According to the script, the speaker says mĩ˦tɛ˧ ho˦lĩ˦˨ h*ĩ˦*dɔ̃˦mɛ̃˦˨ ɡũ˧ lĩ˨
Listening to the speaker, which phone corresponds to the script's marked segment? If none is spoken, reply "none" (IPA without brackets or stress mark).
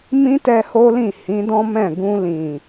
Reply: ĩ˨˦